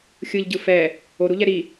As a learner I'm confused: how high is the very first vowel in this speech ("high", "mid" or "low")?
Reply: high